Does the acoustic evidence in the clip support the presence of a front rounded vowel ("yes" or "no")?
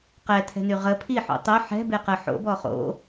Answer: yes